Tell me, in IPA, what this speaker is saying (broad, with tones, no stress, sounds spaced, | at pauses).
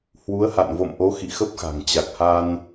h w u˨˦ ə̯ h a̰˧˨ n v o̰˧˨ m ʔ o˨˦ x ḭ˧˨ x ə˦˥ p̚ x a̤˨˩ ŋ t͡ɕ a˨˩ k̚ h a˧ n